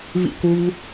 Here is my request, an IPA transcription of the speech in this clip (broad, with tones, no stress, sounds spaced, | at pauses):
v ḭ˨ k u˨ v